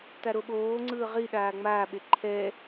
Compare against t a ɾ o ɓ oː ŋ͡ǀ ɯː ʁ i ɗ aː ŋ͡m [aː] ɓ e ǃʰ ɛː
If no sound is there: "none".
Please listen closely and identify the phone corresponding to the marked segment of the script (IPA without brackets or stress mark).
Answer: aː